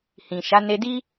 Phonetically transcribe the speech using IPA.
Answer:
h ĩ˨ ʃ a˨˦ n e˧ d i˦

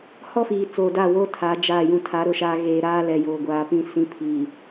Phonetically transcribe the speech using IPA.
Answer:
h ɔ˦ f iː˨ t͡s oː˨ d a˦˨ w oː˦ tʰ a˨˦ d͡ʒ aː˦˨ j ũ˨ tʰ a˨˦ ɾ ʊ˨ ʃ aː˨ ɣ eː˨ ɾ aː˦ l ɛ˨ j oː˨ ɡʷ aː˨ p ĩ˨ s ĩ˨˦ pʰ iː˨

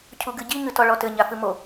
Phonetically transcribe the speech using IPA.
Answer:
cʰ u ɡ ɨ ɟ i ŋ ɨ t ɔ ɭ ɔ t ɘ ɲ a f ɨ m o

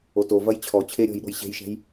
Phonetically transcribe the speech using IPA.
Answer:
o t o v ɐ j t͡ɕʰ ɔ t͡ɕʰ e ɾʲ ɔ̤ j ɗ o̤ j ɕ e̤ j ʃ ɛ̤ j

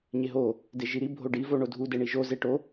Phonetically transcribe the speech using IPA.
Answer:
ɲ e ɦ o | d e ʒ i ɾ i bʱ o ɖ i v o ɳ o dʱ u d e ɳ i ʒ o z e ʈ o

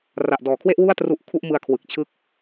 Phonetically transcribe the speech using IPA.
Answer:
r a˨˩ ʔ d ɔː˨˩ kʰ w e˥˩ ʔ w u˥˩ a̯ t r u˦˥ ʔ kʰ u˥˩ ʔ m ɯ˧ a̯ kʰ w ɯ˨˩ k̚ t͡ɕʰ ɯ˦˥ k̚

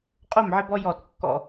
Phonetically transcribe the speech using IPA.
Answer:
qʼ o˦˨ m ʕ ɪ˦ b ɔ˦ j ɔ˦˨ t kː ɔ̰˦

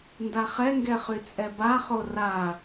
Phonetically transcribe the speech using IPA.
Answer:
n d a χ ɛ ŋ ɡ ɛ χ y t͡sʼ ɛ b a χ o r a

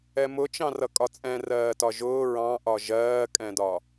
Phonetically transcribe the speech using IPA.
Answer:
ɛ m ʊ t͡ʃ ɑ̃ r ʌ kʼ ɒ t͡sʼ ɛ̃ r ɜː t ɒ ʒ ʊː ɹ ɑ̃ ʔ ɒ ʒ ɜː kʼ ɛ̃ d ɒ

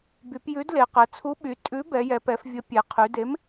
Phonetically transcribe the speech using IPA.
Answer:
b y˩˧ p j ʉ˨˥ d l e˩˧ q ɛ˩˧ t͡sʰ u˨˥ ɓ y˩˧ tʼ ʉ˨˥ b ɛ˩˧ j ɛ˩˧ p ɛ˩˧ f vʲ ə˨˥ pʲ e˩˧ qʰ y˩˧ d e˨˥ m

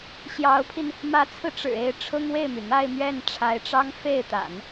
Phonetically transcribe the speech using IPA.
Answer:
ɕ j ɑ˧˥ ʊ̯ pʰ i˧ n | m ä˧˥ t͡sʰ ɹ̩˧ ʈ͡ʂ ɻ̩˨˩ e˥˩ ɪ̯ ʈ͡ʂʰ ʊ˥ ŋ w e˥˩ ɪ̯ m y˩ n̪ a˥˧ ɪ̯ m ɥ ɛ˥˩ n ʈ͡ʂʰ a˧˥ ɪ̯ ʈ͡ʂ ɑ˥ ŋ f e˥˩ ɪ̯ t̪ a̰˨˩˦ n

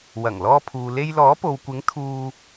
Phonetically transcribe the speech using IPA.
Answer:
w ɐ˨˩ ŋ l ɔː˧ pʰ uː˨ l e˧ j l ɔː˨˥ p o˨ w kʷ ɪ˨˥ ŋ t̪ʰ uː˥

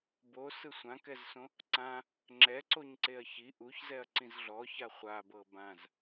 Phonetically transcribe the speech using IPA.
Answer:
b o s ɯ sʷ ã k ɛ z s õ | ǀ ã | ŋ͡ǁ ɛ ǀ o ɲ ǀ e ɐ̯ ç i ʔ u ç z ɛ ɐ̯ ǀ ĩ z ɮ ɔ ç a χʷ a b ɤ b ã z

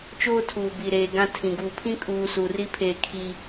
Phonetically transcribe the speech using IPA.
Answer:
t͡ʃ oː˦ tʰ uː˨ b i˨ ɾ eː˨ ɡ ã˦ tʰ ĩ˨ ɡ u˦˨ pʰ ĩ˦ kʼ uː˨ s uː˨ r i˦ pʰ eː˨ kʰ i˨

